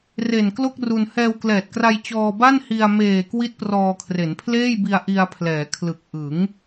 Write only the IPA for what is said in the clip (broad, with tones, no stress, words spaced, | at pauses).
re˨˩nklo˥˩k̚ru˧n hɛː˧wklɛː˨˩t̚kra˧j t͡ɕɔː˧ba˥˩nhi˧a̯ meː˨˩ kwi˦˥t̚prɔː˧kʰre˩˦n pʰleː˥˩jbi˧a̯ʔi˧a̯pʰlɛː˩˦ kʰlɯ˨˩k̚ ʔɯ˩˦ŋ